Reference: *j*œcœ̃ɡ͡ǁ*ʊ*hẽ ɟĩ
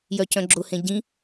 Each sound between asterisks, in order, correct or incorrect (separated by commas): correct, correct